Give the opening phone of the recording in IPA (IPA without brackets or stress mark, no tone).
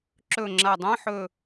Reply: ǁ